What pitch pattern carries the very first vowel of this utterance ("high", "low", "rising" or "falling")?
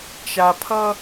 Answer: low